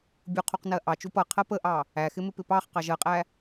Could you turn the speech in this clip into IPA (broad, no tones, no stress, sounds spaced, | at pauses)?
bʲ u qʰ u q n ɜ ʔ ɑ t͡ʃ u p ʌ qʰ ɜ p ə ʔ ɑ | æ x ɪ m ɪ p ɪ p ɑ χ q ɑ ʒ ɜ qʼ æ